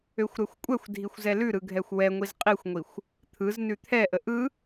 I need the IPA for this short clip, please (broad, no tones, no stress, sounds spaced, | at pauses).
ø xʷ ɾ ɛ xʷ kʷʼ ɛ xʷ dʱ i xʷ z ɛ l ʉ ɾ ɯ ɡʱ ɛ xʷ w ɛ ŋʷ i z qʼ i xʷ ŋʷ i xʷ | t̪ʰ ɯ z n ʉ t̪ʰ ɛ ʔ ə ʔ ɯ